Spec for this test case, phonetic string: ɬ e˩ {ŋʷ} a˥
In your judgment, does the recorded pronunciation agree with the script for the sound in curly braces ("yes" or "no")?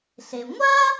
yes